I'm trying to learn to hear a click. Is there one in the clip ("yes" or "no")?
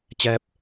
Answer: no